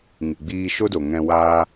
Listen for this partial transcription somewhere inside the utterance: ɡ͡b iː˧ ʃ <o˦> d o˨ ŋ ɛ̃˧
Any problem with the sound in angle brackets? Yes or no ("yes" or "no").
no